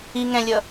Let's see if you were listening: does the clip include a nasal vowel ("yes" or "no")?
yes